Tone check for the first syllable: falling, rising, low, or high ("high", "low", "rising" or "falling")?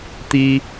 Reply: high